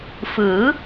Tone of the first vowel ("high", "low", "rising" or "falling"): rising